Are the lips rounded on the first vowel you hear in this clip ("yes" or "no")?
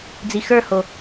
no